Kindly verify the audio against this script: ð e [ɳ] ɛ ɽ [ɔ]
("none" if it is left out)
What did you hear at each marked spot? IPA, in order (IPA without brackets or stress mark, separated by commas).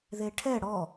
ʈʰ, ɔ